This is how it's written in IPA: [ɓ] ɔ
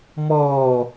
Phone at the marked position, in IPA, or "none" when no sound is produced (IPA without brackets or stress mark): m